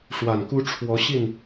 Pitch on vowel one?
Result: low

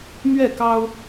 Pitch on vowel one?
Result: falling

